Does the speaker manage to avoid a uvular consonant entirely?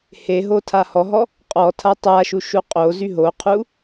no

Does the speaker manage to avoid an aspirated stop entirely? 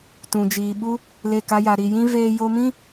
yes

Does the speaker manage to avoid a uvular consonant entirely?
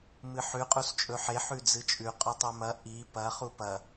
no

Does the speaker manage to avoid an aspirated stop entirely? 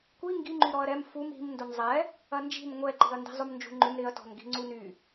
yes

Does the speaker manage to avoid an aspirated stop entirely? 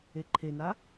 no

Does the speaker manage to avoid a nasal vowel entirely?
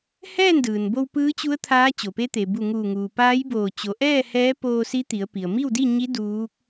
yes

